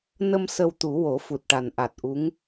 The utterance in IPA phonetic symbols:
n ə˧ m s ə˧ w t̪ u˨˩˦ w o˨˩˦ f u˨˩ t̚ ʈ a˨˩ n ʔ a˨˩ t̚ ʔ u˧˥ ŋ

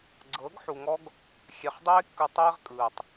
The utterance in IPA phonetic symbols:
ɡ͡ǀ ɤː˨˦ ɡ ħ u˨ ŋ ɔ˦ ɡ | xʲ ɛ˨ χ dˤ eː˦ kː ɯ˨ tˤ eː˦ ʁ kʼ ɯː˨ tˤ

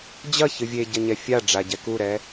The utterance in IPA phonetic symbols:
d͡ʑ ɐ ç ɨ vʲ e ɟ ɐ ɲ ɛ fʲ a ɖ͡ʐ a ɟ ɛ k u ɾ ɛ

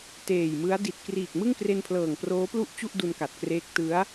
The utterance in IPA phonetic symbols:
t eː˨˩ j m ɯ˦˥ a̯ d i˨˩ t̚ k r iː˨˩ k̚ m ɯ˥˩ ŋ k r e˧ n pʰ l ɤː˨˩ ŋ p r oː˦˥ p l u˥˩ ʔ t͡ɕ u˥˩ ʔ d u˧ n k a˨˩ t̚ k r eː˦˥ k̚ t ɯ˦˥ a̯

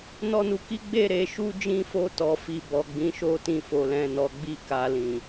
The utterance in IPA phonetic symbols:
n ɔ˧ n u˨ k i˨˦ ɡ͡b e˦˨ ɾ e˨˦ ʃ u˦ d͡ʒ ĩ˧ f o˧ t ɔ˨ f i˨ b ɔ˨ ɡ͡b ĩ˨˦ ʃ o˦ t ĩ˦˨ f o˧ l ɛ̃˧ n ɔ˧ ɡ͡b i˦ k a˧ l ĩ˨

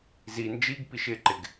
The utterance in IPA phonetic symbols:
z i n d͡ʒ i ɡ p i ʃ ɪ ǃ ɪ ɡ

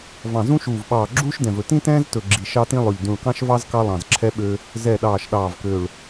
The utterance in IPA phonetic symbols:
v ɑ̃˨˩ z ũ˦ ʃ uː˨˩ v ɓ ɑː˨˩ ɡ͡ǁ uː˦ ʃ d ɛ̃˨˩ v ɵ˨˩ t ĩ˦ t ɛ̃ː˦ z t ɵ˨˩ ɡ͡ǁ i˨˩ ʃ ɑ˦ t ĩ˦ lˠ ɵ˨˩ ʎ d ũ˨˩ ɭ k ɑ̃˦ ʃ v ɑ˦ z k ɑ˦ lˠ ɑ̃˨˩ z ǁʰ ɛ˦ ɓ ø˦ | z ɛ˨˩ ɗ ɑː˨˩ ʃ ɗ ɑː˨˩ v k ø˨˩ ɭ

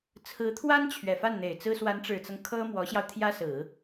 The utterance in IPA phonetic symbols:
t͡sʰ ɹ̩˧˥ t̪ʰ w a˥ n t͡ɕʰ ɥ ɛ˨˩ f a˥˩ n n̪ e˨˩ ɪ̯ t͡s ɹ̩˥ s w a˧˥ n ʈ͡ʂ ɻ̩˨˩ t͡s ɤ˦ ŋ kʰ ɤ˥ m w ɔ˧˥ ɕ j ɑ˧ ʊ̯ t̪ʰ j ä˥ s ɹ̩˨˩˦

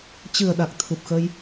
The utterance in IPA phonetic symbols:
t͡ɕ ɨ˨˩ ə̯ ɗ a˨˩ k̚ t̪ʰ u˨˩ p̚ x ə˧ j

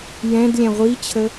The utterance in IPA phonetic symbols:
j ɛ̃ d lʲ ɛ̃ ʁʷ i t͡ɕʰ ə

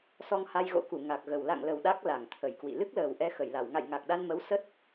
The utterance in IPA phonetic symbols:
s ɔ˧ ŋ h a˧ j ɣ o̰˧˥ k u˧˩ ŋ a˨˩ k̚ ɣ ə˨˩ w l a̰˧˨ ŋ l ə˨˩ w ɗ a˦˥ k̚ l a˧˩ ŋ t̪ʰ ə˧˩ j k w ḭ˧˨ l ɨ˦˥ k̚ l əː˨˩ w ʔ ɛ˧ x ə˧˩ j l a˧˩ w ŋ a̰˧˨ j ŋ a˨˩ k̚ ɗ a˧ n m ə˨˦ w s ə˦˥ t̚

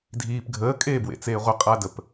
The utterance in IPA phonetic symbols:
dʱ iː p ɡʱ əː kʼ eː b w ḛ t͡s eː ʁʷ ə qʼ a d ə p

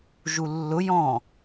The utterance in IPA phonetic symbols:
ʒ u lː ʊ j ɔ̃

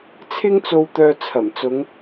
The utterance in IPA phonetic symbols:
t͡sʰ ɪ˥ ŋ t͡s o˧ w t̪ œː˧ t͡sʰ ɐ˨˩ m t͡s ʊ˨˧ ŋ

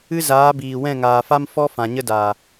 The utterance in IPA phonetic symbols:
ɨ˦ z aː˨˦ b iː˨ w ɛ̃˦˨ ŋ aː˨ f a˦ m f ɔ˦ f ã˨ ɲ ə˦ d a˨

